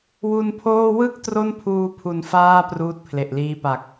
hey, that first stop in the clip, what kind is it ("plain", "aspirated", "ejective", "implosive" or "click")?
aspirated